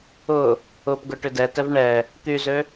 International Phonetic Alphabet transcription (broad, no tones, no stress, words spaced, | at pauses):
ʊ | ʊpɡʊ ʈʏdɛtɛv ɳɛ | t̪yzø